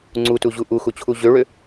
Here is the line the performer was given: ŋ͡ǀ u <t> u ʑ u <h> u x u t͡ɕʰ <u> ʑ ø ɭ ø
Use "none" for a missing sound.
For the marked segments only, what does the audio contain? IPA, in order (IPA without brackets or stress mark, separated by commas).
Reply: t, ʔ, u